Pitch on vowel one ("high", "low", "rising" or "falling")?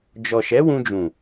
low